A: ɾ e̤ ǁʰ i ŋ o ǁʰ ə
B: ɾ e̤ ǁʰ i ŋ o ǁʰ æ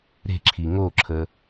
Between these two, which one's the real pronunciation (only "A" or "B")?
A